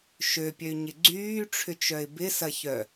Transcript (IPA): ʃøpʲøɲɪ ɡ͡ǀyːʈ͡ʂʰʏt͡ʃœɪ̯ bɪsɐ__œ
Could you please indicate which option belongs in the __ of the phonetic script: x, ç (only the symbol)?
ç